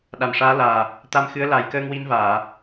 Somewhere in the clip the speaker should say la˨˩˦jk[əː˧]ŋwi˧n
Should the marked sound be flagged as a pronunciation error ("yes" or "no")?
no